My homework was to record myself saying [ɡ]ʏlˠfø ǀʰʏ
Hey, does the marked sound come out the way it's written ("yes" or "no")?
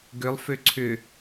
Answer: yes